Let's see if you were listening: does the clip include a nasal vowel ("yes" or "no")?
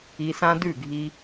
yes